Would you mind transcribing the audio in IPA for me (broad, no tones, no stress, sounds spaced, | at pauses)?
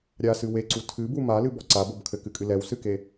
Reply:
ɾʲ a s ɨ w e ǀ u tʰ ɨ b u m a l ɨ b ɔ ǀ a b o b kʰ ɘ k ɨ kʼ ɨ l ɛ w s ɨ k e